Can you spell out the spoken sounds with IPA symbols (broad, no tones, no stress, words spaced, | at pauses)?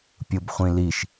pʲɯbχʷĩliʃ